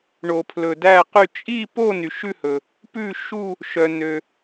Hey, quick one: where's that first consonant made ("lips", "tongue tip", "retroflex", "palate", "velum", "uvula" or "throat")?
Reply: retroflex